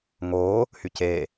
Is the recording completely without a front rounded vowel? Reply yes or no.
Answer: no